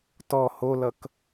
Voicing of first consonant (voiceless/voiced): voiceless